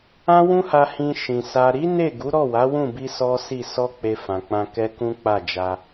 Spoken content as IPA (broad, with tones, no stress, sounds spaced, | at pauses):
ã˦ w ũ˦ h a˧ h ĩ˧ ʃ ĩ˨ s a˨ ɾ i˨˦ n e˦˨ ɡ u˨˦ ɾ ɔ˦˨ w a˨˦ w ũ˦˨ b i˧ s ɔ˦ s i˦˨ s ɔ˧ k͡p e˧ f ã˨ k͡p ã˧ k ɛ˦ k ũ˦ k͡p a˦˨ d͡ʒ a˧